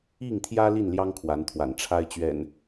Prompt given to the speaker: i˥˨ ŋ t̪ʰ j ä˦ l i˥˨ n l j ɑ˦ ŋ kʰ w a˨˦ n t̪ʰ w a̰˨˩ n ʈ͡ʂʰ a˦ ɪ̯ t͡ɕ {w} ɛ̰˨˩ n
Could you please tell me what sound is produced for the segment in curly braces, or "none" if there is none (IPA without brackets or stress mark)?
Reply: ɥ